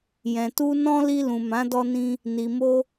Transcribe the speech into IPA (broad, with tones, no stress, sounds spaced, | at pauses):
j ɛ̃˨ t u˧ n ɔ̃˦ l i˧ l ũ˨ m ã˨˦ d ɔ˧ n ĩ˧ | n i˨ m o˧